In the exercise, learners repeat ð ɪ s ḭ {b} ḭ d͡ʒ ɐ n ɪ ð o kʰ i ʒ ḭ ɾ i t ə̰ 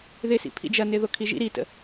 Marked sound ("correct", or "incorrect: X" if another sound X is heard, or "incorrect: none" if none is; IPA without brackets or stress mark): incorrect: pʰ